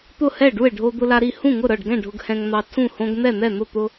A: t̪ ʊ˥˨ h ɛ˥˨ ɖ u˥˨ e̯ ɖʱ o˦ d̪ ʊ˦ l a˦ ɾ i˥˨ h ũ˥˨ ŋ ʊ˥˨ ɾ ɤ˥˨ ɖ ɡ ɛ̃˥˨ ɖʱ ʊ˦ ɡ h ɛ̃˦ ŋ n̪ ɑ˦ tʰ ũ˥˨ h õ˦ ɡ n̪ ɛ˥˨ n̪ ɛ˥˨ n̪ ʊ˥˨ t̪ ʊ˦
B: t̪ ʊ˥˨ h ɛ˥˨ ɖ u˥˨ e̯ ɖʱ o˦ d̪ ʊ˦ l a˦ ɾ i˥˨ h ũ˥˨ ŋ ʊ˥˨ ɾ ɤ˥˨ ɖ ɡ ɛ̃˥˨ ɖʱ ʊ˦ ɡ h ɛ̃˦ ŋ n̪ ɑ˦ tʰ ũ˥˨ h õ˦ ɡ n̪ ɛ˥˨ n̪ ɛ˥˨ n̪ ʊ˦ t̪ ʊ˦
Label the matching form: A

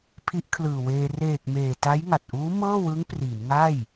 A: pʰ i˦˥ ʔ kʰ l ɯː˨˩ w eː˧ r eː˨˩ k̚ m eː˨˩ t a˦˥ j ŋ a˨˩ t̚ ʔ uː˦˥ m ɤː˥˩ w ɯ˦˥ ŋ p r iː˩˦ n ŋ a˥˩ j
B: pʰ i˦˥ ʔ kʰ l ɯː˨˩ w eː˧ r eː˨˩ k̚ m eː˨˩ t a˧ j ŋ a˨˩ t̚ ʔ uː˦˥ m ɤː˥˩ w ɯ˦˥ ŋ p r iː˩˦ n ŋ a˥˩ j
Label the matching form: A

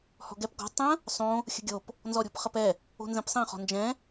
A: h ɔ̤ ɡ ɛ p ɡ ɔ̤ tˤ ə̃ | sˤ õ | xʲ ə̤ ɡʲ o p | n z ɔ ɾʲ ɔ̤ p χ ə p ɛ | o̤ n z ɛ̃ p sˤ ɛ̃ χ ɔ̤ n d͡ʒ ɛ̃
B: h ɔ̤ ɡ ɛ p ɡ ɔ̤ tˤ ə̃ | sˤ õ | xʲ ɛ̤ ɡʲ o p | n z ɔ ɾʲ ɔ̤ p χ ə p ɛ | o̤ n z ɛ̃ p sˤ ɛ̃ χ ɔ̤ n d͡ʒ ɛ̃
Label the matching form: A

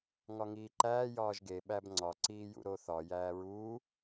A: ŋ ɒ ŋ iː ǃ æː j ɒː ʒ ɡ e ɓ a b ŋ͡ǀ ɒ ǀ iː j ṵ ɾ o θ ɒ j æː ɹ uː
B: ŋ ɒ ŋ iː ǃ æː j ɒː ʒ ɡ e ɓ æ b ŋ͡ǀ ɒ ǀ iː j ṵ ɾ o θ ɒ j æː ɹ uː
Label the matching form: B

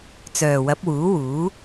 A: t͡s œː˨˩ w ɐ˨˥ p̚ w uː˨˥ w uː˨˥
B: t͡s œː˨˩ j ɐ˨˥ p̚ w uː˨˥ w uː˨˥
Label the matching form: A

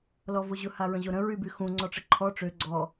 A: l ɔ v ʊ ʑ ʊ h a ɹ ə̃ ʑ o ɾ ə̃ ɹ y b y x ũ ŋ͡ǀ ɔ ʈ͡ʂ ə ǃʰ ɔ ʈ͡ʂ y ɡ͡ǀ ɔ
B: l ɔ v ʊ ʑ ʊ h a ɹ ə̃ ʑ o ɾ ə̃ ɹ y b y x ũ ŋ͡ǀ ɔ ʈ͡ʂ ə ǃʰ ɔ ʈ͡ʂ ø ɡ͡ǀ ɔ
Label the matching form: B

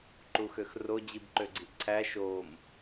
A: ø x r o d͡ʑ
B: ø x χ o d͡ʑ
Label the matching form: A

